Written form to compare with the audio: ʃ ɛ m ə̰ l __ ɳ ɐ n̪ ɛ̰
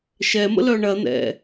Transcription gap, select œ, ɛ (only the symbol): œ